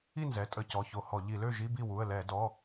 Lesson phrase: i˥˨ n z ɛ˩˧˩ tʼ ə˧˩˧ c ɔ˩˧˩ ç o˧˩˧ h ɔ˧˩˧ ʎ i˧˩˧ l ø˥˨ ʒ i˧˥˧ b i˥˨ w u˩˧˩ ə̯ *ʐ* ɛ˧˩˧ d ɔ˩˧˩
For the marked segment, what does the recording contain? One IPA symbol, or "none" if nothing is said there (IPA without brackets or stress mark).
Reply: l